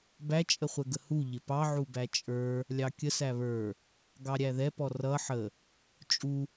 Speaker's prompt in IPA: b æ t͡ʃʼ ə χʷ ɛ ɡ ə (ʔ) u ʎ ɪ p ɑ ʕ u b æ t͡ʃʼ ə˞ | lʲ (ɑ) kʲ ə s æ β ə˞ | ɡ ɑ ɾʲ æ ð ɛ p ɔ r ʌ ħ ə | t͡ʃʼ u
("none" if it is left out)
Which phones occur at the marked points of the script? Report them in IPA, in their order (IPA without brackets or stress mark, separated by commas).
h, ɑ